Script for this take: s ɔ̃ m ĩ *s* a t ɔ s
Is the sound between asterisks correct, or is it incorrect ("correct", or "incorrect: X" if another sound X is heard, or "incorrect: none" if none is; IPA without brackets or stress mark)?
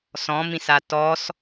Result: correct